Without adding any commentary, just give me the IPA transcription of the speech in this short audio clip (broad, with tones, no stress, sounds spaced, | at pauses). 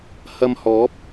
h ɐ˧ m h ɔː˨˥ p̚